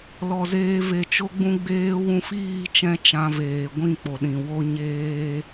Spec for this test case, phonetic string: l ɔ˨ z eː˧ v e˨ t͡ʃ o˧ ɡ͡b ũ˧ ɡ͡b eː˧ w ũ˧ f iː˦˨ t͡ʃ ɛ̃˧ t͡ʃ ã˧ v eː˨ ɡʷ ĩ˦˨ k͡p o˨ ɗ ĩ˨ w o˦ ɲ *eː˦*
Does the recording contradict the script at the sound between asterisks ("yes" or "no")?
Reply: no